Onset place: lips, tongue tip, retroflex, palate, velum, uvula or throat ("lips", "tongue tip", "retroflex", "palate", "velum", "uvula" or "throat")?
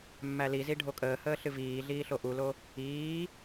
lips